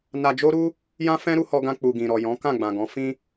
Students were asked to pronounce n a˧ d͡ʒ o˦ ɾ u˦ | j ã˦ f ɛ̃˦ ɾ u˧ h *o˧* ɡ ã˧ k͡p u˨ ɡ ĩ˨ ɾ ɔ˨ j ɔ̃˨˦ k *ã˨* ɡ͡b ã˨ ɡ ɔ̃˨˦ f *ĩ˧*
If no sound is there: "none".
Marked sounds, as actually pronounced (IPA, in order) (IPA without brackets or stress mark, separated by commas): ɔ˧, ã˦˨, ĩ˦